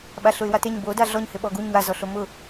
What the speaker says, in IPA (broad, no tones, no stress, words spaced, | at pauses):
ɓaɬʊɪ̯wateɲ bo daɮɔɲhɪ ɓɔɡuɲ wazɔɬo mʊ